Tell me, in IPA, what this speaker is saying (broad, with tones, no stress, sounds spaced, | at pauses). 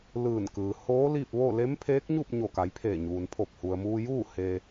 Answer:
l ɯː˧˩ n k ɯː˩ h oː˧˥ l i˥˨ p̚ ʋ o˥˨ l e˧˥ m pʰ eː˧˥ k̚ ɲ u˥˨ p̚ ɲ o˧˩ k a˩˧ j pʰ eː˧˩ ɲ uː˩ n pʰ o˧˩ p̚ h u˩ ə̯ m uː˧ j uː˥˨ h eː˧